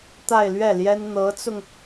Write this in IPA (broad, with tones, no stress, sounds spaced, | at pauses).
t̪ a˥˧ ɪ̯ l ɥ ɛ˥˩ l j ɛ˥ n n̪ ɤ˧˥ t͡s ʊ˧ ŋ